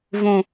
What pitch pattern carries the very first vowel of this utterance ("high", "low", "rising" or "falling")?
high